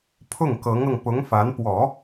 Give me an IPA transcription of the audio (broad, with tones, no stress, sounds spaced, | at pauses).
pʰ ʊ˥˩ ŋ k ɤ˧˥ ŋ ɤ˧ ŋ p ʊ˧˥ ŋ f a˧˥ n p w ɔ˨˩˦